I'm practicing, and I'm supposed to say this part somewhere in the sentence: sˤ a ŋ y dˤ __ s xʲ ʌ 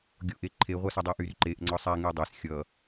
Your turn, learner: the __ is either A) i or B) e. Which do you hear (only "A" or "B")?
B